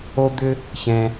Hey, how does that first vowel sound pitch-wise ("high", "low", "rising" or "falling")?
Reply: high